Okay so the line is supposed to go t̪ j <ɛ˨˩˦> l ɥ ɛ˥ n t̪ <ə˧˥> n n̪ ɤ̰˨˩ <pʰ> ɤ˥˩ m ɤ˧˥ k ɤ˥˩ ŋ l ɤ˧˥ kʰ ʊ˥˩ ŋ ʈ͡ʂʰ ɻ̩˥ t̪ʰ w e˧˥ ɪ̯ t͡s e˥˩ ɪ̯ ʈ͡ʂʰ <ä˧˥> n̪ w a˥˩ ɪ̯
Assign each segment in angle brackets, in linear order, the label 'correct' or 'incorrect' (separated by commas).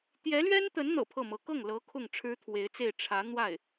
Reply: incorrect, correct, correct, correct